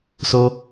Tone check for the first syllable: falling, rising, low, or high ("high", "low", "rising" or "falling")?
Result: high